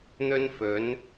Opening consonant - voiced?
yes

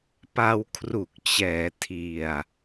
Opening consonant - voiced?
no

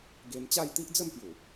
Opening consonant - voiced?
yes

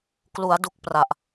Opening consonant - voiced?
no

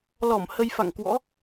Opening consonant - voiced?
yes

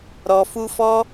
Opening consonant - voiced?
yes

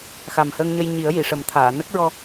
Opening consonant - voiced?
no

